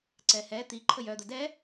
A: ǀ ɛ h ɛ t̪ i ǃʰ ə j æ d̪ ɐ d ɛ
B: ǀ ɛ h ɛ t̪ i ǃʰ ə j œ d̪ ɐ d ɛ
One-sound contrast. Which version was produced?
B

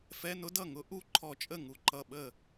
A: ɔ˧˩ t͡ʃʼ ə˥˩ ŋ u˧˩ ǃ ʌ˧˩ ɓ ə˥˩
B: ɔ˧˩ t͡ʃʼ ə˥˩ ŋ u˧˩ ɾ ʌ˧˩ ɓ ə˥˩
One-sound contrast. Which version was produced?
A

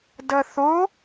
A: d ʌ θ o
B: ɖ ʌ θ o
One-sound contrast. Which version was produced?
A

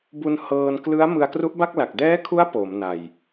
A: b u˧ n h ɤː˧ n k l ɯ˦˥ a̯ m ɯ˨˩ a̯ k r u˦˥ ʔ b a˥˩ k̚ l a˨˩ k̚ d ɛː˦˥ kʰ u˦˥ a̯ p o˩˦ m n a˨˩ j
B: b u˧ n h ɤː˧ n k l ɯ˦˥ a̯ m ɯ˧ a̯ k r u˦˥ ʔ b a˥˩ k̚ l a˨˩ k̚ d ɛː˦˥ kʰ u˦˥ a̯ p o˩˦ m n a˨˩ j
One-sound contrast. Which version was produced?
B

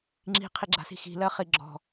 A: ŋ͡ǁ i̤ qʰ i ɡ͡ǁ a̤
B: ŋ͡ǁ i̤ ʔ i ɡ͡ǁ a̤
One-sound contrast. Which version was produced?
A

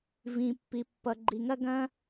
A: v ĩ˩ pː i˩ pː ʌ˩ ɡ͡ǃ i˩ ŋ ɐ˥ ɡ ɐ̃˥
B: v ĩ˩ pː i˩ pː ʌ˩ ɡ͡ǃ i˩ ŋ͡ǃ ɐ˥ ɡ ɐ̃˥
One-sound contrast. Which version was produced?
A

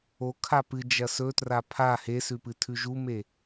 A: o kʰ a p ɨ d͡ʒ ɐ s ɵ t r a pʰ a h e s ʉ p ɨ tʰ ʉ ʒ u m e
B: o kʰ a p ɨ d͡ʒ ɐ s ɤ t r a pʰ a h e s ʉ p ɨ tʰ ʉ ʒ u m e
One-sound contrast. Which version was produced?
A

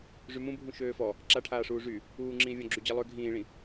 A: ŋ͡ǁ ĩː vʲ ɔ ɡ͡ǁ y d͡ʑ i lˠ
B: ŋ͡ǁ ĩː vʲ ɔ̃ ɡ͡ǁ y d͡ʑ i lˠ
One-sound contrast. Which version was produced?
B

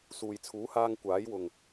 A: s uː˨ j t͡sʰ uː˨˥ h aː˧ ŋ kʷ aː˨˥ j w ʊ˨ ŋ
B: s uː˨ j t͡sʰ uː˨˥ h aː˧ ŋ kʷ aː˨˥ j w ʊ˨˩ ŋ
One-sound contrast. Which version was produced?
A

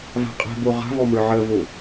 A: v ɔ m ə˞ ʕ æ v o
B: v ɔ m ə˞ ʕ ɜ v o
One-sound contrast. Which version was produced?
B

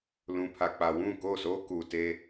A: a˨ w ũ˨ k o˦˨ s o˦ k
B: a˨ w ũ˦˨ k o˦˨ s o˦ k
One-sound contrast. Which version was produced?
B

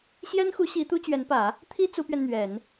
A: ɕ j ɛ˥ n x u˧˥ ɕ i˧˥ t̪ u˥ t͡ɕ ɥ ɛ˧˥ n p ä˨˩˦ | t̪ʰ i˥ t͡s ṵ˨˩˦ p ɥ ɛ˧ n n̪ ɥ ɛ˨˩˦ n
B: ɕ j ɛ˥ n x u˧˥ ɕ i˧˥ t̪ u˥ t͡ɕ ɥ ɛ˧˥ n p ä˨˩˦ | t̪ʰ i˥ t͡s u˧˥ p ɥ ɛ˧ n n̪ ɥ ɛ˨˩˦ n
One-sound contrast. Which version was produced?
B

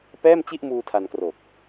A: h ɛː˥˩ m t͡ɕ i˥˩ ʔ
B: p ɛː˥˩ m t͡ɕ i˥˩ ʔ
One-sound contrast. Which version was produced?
B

